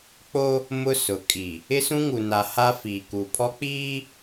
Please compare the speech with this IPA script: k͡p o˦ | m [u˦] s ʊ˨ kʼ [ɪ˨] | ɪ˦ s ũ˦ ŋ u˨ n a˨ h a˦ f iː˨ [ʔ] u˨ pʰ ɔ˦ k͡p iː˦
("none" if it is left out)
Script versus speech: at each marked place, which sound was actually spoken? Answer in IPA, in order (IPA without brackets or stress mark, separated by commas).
ʊ˦, i˨, k